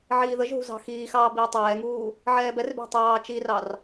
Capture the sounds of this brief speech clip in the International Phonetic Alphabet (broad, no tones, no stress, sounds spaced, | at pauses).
ʕ iː ð ə ʒ ɦ ṳ z ɑ̤ x iː x ɑː b iː tˤ ɛː ŋ uː | ʕ ɛː b ɛ r b e̤ tˤ ɑː t͡ʃ i r ɑ r